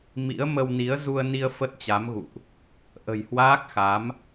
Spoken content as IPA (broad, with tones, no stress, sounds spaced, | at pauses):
m ḭ˧˥ ə̯ m ə˧ w n i˨˦ ə̯ z u˧ ə̯ n i˧ ə̯ f ə˦˥ t̚ t͡ɕ a˨˦ m ɣ ṵ˧˨ ʔ | ʔ ə̤˨˩ j h w aː˦˥ k̚ x a˨˦ m